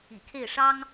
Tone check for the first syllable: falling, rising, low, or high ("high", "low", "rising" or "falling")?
low